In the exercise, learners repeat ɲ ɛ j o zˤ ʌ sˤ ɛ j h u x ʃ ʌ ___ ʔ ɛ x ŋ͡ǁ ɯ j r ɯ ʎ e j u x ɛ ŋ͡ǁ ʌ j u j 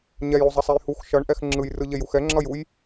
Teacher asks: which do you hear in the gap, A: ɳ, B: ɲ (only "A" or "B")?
A